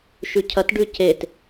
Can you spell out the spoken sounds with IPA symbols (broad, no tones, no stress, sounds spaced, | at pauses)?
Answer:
ʃ ʉ cʰ ɐ t ɖ ʉ c e t